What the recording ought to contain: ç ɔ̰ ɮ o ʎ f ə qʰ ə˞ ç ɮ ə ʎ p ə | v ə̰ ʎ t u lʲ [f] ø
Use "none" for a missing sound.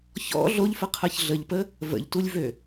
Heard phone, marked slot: v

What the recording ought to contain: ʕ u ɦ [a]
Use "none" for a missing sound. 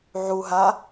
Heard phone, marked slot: a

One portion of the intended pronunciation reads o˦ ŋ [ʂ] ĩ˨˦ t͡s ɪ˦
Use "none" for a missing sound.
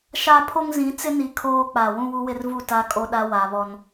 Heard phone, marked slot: z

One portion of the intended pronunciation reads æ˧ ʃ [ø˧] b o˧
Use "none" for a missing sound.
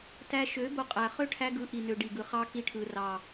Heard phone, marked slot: ø˨˦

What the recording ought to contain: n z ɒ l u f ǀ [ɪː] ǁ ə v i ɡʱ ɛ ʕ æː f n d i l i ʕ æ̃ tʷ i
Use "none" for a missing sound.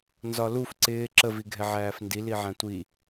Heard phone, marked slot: ɪː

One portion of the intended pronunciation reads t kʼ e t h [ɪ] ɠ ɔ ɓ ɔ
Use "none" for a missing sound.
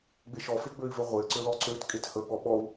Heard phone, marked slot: ə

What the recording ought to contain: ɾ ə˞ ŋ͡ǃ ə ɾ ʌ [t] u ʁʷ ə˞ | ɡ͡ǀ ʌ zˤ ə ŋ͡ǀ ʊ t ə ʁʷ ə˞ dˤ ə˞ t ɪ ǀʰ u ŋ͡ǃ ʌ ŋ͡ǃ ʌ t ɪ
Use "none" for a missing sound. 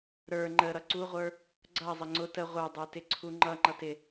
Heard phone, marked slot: ǀ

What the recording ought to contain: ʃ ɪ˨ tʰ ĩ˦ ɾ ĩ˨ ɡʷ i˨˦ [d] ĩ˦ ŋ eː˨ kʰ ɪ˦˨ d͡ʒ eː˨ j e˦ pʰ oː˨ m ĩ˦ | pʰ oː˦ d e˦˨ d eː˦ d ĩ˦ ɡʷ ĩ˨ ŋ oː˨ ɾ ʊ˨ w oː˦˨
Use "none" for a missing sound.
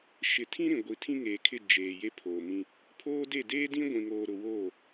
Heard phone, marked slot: tʰ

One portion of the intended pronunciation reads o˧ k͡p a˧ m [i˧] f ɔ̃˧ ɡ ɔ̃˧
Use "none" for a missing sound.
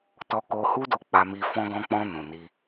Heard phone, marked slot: i˧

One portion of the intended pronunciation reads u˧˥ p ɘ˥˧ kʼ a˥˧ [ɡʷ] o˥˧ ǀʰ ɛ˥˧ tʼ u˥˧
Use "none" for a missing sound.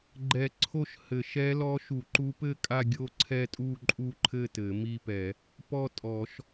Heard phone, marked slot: ɡʲ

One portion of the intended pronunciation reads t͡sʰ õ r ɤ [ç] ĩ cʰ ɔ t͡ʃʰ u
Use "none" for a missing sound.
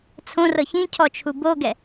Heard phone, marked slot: ç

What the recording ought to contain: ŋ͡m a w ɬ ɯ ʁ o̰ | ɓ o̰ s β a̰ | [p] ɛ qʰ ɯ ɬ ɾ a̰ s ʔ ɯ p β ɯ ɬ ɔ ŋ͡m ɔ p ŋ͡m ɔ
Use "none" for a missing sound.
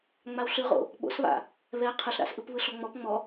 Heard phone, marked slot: β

